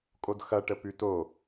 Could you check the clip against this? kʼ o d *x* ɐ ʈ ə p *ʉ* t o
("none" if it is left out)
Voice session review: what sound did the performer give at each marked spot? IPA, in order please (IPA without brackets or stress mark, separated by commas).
x, ʉ